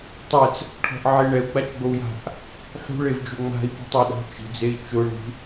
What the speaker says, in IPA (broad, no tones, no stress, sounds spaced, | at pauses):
tˤ ɛ t͡s | ʈʰ ɔ̤ ʔ ʕ e ɳ ɛ u̯ ɡ͡b a t͡ʃ ɡ͡b o u̯ j a̤ ʔ | ħ ṳ ɭ e v d͡ʒ o ŋ͡m a̤ i̯ p ṳ tˤ e ɗ ɔ̤ t͡ʃ i̤ d͡z e i̯ t͡ʃ ʊ ɳ i̤